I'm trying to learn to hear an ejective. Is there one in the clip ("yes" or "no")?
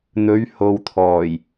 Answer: no